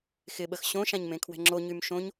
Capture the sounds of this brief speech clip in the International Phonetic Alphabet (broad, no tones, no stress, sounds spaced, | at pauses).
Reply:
x ɪ ɓ ə x ɕ õ ʃ ã ɲ m ẽ kʰ w ɛ̤ ŋ͡ǁ o ɲ y m ʃ õ ɲ